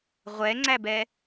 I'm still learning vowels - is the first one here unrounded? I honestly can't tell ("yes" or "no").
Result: yes